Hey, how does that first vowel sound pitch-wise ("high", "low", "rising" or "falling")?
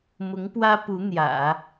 rising